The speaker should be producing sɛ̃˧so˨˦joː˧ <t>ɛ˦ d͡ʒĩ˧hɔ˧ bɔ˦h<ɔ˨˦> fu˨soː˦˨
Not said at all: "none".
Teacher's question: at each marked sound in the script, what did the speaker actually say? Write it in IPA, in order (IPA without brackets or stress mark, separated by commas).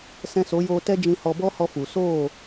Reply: t, ɔ˧